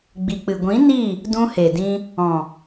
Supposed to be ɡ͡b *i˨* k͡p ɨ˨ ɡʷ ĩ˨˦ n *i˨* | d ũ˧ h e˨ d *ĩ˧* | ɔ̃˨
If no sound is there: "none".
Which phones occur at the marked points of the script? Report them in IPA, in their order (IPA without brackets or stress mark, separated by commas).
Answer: i˨, i˦˨, ĩ˧